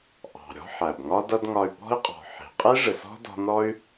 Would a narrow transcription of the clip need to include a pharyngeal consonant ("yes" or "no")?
yes